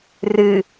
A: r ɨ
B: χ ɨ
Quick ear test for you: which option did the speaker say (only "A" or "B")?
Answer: A